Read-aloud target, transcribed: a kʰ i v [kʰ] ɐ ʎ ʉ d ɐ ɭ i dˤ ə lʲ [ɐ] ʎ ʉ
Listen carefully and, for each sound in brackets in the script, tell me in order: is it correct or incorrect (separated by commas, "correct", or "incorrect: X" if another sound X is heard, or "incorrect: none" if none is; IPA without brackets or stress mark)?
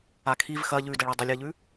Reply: incorrect: x, correct